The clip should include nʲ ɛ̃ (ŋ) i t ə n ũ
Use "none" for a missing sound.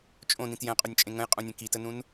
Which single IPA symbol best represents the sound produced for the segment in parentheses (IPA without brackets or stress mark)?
k